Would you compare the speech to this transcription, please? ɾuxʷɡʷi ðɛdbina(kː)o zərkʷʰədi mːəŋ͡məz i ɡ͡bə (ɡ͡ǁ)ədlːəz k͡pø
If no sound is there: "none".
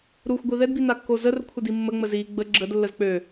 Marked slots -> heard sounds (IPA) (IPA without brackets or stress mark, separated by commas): kː, ɡ͡ǁ